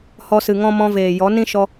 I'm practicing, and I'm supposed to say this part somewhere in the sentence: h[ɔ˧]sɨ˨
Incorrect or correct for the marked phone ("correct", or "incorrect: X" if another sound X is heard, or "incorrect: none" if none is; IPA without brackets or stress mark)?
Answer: correct